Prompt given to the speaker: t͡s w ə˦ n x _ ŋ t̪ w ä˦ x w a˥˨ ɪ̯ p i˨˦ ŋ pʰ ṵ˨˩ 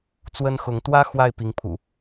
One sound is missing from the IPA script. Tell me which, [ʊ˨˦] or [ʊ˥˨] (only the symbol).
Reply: ʊ˨˦